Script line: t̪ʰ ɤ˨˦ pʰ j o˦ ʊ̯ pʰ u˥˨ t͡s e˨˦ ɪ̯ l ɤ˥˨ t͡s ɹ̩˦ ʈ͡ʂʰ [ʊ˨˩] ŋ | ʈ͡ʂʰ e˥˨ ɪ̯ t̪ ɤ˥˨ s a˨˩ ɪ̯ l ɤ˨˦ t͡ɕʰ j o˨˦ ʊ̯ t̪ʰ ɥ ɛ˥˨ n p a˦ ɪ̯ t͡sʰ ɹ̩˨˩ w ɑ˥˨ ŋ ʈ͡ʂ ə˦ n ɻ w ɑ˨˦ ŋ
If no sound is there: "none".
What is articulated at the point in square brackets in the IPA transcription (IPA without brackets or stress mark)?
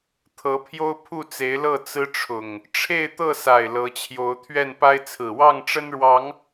ʊ˨˩